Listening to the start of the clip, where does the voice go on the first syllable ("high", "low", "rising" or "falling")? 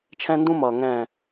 high